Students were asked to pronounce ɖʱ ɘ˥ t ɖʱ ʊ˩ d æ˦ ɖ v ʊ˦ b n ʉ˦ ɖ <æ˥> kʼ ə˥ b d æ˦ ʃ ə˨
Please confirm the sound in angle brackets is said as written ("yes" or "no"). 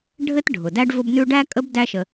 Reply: yes